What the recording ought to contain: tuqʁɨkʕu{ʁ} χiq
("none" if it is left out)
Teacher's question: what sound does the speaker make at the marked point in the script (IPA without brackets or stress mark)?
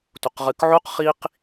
q